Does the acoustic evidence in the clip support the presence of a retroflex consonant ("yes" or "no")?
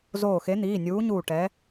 yes